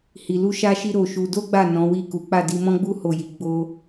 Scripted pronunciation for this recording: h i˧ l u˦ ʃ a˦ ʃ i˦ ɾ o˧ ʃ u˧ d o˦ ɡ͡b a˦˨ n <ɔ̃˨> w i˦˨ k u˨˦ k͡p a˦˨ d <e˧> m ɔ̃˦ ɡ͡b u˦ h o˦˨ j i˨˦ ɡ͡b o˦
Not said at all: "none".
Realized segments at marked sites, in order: ɔ̃˨˦, i˧

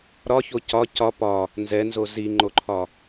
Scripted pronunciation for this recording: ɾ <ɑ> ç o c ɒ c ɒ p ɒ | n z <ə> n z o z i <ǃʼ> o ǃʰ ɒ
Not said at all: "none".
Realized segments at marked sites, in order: ɒ, ɛ, ŋ͡ǃ

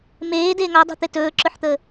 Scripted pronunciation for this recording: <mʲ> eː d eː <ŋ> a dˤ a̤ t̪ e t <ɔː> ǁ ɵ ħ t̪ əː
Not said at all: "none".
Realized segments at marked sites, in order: m, ŋ, ɵː

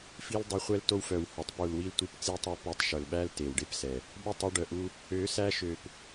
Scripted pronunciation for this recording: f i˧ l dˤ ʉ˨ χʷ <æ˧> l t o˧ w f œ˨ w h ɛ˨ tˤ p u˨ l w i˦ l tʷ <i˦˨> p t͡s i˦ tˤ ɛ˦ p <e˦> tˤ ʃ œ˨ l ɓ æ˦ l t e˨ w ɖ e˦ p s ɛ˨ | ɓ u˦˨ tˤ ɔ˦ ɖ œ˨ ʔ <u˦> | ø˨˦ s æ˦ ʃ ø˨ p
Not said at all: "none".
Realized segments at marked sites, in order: ɛ˧, i˦˨, e˧, u˦

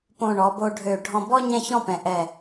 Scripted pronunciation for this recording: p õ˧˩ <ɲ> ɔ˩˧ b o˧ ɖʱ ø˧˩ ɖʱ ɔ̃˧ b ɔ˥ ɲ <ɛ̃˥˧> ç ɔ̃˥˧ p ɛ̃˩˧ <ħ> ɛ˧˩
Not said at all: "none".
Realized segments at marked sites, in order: ɳ, ɛ̃˥˧, ʔ

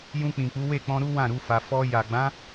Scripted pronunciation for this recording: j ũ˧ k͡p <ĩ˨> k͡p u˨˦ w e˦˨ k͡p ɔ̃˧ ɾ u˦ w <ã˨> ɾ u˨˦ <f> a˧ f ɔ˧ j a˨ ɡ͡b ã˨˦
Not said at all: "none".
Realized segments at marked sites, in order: ĩ˨, ã˦˨, f

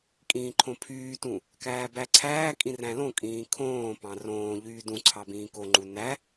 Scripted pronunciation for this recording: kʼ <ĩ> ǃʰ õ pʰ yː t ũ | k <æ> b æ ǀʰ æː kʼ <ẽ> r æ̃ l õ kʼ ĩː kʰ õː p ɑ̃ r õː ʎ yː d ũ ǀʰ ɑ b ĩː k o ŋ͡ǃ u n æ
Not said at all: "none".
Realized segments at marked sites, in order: ĩː, æː, ĩ

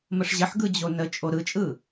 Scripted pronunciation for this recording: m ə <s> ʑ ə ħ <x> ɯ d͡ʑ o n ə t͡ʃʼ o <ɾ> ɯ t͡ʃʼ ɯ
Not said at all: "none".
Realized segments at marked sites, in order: ʂ, ɡ, ɾ

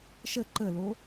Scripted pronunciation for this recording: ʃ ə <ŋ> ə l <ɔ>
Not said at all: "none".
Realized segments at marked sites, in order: ǃ, o

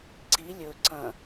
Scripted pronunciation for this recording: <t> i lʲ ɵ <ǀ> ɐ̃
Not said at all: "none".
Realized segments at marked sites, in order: ǀ, ǀ

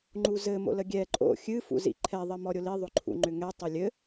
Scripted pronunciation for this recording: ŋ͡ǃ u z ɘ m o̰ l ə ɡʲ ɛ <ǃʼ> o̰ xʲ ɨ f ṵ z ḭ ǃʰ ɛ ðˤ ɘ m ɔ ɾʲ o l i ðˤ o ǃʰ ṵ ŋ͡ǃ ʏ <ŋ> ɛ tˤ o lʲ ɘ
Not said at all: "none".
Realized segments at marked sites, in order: ǃʼ, ŋ

